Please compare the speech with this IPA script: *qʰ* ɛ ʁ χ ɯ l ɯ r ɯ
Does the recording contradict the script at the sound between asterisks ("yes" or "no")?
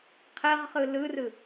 no